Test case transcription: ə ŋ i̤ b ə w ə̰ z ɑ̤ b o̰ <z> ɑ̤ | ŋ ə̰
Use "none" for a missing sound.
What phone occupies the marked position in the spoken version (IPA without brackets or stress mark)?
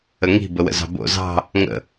z